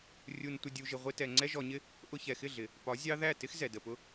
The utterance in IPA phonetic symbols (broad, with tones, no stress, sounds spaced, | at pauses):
rʲ u˧ n tʷ ə˧ dʲ u˧ ʒ ɪ˧ ʁʷ ɪ˦ t ɛ˧ ŋ͡ǀ ɛ˦ ʒ ɔ˧ ɲ ɪ˦ | ʔ ʊ˧ ç ɛ˨ x ɪ˦˨ ɮ ɪ˨ | p ɒ˨˦ zʲ ɑ˦ ð æ˦˨ t ɪ˦ x z ɛ˨ d ə˨ p ʊ˦